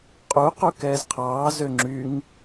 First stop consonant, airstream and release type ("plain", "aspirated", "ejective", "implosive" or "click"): ejective